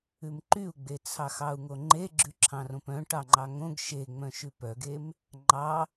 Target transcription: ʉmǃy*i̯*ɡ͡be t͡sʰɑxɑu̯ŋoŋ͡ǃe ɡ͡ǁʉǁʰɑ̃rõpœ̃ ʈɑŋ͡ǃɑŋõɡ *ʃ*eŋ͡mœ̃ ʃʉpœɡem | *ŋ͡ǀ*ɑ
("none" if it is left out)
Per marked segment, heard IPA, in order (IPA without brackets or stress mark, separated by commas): u̯, ʃ, ŋ͡ǃ